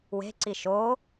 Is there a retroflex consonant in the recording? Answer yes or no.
no